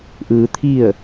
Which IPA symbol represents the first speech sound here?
ʔ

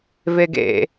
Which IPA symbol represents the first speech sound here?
v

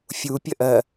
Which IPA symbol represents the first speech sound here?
fʲ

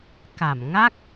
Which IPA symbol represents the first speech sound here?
k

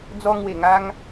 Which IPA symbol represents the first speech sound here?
d͡z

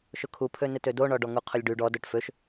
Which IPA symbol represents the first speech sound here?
ʃ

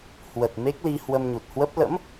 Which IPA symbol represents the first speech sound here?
h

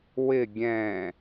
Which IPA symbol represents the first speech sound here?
w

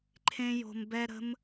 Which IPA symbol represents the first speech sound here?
ǃʰ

